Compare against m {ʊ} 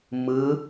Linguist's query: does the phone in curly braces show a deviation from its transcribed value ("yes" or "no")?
yes